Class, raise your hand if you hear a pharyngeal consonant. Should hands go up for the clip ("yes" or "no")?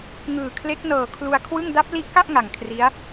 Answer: no